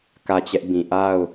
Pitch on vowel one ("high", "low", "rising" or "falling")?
falling